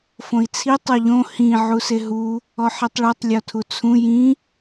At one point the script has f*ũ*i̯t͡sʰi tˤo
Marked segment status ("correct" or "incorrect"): incorrect